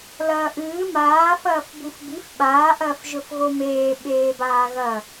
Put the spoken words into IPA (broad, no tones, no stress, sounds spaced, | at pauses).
l ɐː ʔ ɨː m aː f ɐː f b u f b i f ɓ aː ʔ ɐː f ʒ ɵ f ɣ o m eː ɓ eː b aː ɣ ɐ